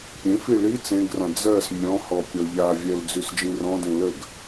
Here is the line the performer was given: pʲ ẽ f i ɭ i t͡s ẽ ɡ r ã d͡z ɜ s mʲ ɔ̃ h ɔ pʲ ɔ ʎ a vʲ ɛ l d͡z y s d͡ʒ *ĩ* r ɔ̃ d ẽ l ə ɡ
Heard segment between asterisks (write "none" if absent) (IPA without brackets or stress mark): ĩ